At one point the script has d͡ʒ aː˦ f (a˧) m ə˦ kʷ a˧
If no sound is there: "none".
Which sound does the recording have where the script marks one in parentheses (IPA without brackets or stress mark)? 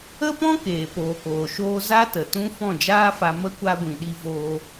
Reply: a˧